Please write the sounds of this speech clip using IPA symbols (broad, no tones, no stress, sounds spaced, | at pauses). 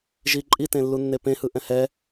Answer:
ʒ i ǃʼ i t ẽ lː u nː e p ẽ h ɯ ʔ ɛ̃ h ɛ